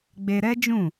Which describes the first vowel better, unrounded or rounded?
unrounded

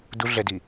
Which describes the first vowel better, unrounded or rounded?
rounded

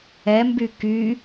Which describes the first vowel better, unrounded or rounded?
unrounded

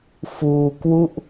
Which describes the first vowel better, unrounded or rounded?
rounded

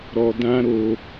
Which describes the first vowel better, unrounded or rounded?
rounded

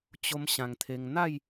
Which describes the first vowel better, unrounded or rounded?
rounded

